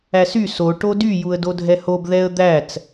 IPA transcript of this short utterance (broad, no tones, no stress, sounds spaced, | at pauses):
æ s y s o ʈ o d y j u ə̯ d o dʱ ɛ h o b ð ɛ ə̯ d̪ æ t͡s